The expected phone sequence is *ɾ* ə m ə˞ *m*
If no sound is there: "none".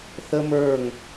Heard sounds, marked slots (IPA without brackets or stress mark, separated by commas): θ, ŋ